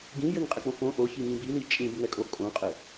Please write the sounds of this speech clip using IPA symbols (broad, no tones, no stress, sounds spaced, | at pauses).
ɡ ĩ j ɘ ŋ qʼ ɛ k͡p õ f õ ʔ o ç i ŋ ĩ b i l i t͡ʃʼ ĩ b ŋ ɛ kʼ o kʼ õ qʼ ɘ